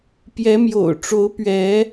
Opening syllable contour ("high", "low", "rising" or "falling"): rising